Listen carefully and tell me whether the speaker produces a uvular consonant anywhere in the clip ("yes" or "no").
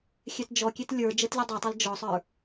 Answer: no